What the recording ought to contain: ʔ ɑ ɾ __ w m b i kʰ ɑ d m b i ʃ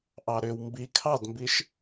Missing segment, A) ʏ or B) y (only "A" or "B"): A